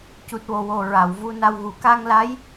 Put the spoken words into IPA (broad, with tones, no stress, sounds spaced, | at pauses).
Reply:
c u˨˩ t̚ w o˨˩ w o˨˩ ɹ a˨˩˨ w v u˧ n a˧ w ɣ u˨˩˦ k a˧ ŋ l a˧˥ j